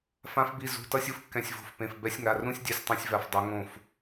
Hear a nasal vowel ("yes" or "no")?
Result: yes